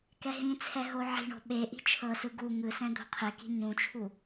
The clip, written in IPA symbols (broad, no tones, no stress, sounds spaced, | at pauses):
k ɛ ɦ ĩ t͡sʰ ɛ ɦ o ʕ i̤ ɳ o̤ ɓ e ʔ i̤ t͡ʃʰ ɤ s ɯ ɡ u ŋ ɯ s ɛ̃ d̪ o̤ qʰ e k i̤ ɲ ũ t͡ʃʰ u